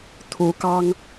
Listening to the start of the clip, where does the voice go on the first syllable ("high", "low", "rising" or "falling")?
rising